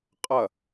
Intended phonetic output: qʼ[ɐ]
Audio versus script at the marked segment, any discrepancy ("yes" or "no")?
no